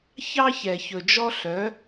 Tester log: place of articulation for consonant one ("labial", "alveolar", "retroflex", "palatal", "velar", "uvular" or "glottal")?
palatal